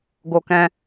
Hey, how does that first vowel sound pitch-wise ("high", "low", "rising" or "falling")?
high